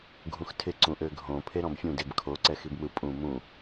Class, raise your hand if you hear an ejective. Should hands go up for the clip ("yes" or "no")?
yes